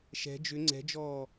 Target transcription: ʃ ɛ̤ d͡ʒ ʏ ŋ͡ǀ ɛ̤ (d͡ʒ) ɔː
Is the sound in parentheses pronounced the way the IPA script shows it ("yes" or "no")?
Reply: yes